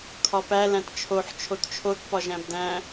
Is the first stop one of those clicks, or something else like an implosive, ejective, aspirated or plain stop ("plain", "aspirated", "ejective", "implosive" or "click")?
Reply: aspirated